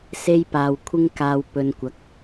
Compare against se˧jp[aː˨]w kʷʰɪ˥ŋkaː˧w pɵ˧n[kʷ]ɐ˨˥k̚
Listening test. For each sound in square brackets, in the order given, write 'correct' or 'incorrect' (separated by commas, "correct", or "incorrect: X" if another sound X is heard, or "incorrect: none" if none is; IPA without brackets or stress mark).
correct, correct